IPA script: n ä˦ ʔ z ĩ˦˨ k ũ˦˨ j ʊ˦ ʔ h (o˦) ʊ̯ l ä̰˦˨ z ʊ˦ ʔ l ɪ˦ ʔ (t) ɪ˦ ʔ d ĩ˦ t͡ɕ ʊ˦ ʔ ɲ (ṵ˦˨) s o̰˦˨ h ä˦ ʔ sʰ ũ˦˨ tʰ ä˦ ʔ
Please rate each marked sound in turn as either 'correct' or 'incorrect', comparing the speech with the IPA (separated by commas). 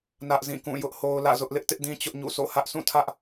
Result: correct, correct, correct